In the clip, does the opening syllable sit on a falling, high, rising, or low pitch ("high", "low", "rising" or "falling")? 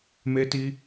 high